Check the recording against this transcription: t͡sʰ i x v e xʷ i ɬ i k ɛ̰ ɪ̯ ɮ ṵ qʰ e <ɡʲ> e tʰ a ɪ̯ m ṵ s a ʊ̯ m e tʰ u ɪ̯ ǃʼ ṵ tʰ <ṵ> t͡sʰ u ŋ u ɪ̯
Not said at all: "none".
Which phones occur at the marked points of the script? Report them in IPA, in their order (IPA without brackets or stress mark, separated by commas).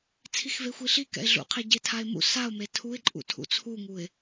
ɟ, ṵ